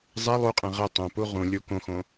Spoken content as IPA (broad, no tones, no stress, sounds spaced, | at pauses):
zˤ ɛ lˠ u qʼ ɛ̃ ʁ ɘ tˤ õ p u ʁ ũ lʲ u k õ x õ